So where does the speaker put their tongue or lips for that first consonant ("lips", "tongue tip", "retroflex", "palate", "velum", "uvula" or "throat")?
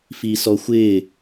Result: lips